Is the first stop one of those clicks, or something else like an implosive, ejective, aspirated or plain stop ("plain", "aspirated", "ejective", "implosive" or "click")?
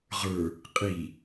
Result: ejective